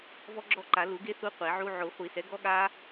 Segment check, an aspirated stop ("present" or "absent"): absent